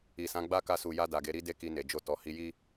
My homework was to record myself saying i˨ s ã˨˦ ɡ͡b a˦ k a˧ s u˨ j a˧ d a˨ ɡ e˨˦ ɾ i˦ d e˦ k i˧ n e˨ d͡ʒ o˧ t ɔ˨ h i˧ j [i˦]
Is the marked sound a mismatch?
no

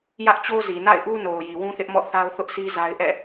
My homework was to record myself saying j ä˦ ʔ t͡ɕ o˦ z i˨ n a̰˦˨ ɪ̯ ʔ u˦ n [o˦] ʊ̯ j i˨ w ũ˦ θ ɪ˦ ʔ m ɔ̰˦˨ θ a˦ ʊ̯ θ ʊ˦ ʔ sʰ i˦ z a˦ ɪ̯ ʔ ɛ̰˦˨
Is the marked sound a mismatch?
yes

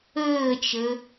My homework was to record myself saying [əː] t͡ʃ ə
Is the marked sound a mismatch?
no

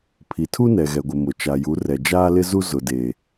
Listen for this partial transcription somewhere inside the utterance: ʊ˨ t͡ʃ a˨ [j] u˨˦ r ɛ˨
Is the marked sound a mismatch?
no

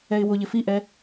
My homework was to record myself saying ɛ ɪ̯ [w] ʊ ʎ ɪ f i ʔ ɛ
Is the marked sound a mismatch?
no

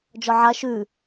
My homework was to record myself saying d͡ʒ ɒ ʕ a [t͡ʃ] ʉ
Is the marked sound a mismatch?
yes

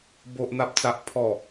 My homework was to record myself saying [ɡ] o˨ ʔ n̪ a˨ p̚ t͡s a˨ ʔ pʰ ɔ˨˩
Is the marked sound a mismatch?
yes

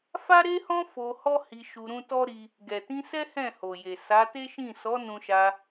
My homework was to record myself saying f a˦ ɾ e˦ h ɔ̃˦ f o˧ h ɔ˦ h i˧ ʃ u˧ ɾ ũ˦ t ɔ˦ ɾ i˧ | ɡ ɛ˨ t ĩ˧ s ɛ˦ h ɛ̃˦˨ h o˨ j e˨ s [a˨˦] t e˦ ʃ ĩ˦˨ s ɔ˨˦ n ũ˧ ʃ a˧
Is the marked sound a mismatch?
no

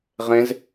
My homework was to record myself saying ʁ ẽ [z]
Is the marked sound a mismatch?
no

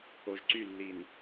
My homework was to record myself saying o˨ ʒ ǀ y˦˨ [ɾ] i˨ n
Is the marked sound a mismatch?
yes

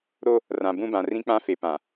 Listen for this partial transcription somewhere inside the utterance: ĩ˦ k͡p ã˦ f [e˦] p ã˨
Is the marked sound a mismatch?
yes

